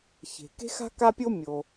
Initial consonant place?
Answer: palatal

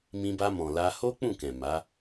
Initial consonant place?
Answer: labial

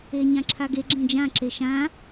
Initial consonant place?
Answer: palatal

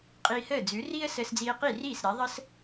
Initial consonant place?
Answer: uvular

